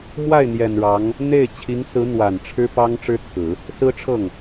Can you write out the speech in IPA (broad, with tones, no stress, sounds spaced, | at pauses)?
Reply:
m w a˥˩ ɪ̯ n̪ j ɛ˨˩ n ɻ ɑ˧˥ ŋ | n̪ e˥˩ ɪ̯ t͡ɕʰ i˧˥ ŋ s ɹ̩˧˥ n̪ w a˨˩ n ʈ͡ʂʰ ɻ̩˥ p ɑ˥ ŋ ʈ͡ʂ ɻ̩˥ t͡sʰ ɹ̩˨˩˦ | s ɹ̩˥ ʈ͡ʂʰ ɤ˥˩ ŋ